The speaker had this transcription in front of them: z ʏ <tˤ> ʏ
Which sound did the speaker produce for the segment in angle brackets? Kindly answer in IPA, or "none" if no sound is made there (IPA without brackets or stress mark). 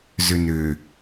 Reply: n